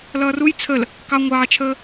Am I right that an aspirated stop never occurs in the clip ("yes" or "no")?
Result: no